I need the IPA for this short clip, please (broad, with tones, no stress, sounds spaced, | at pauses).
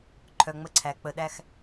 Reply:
ǃʰ œ˨ ŋ͡m ə˦ ǀʰ æ˨ k͡p ə˨ ɗ æ˦ x